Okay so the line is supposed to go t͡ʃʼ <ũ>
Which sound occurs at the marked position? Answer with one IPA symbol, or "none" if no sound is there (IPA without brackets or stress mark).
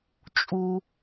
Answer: u